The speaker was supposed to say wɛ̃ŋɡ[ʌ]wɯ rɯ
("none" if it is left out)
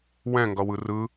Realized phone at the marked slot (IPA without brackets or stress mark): ʌ